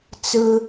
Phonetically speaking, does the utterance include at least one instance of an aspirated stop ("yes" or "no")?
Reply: no